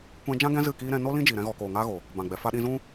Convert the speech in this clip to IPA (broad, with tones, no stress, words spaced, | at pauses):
kʷɛ̃˧d͡ʒã˦ɡɛ̃˦ zɨ˦˨kiː˦ ɾɛ̃˧no˦ lĩ˦d͡ʒiː˨ ɾɛ̃˧ɣɔ˨koː˨ ŋaː˧ɣo˨ | bã˨ɡ͡bɛ˨ fa˧ɗĩ˧zũ˦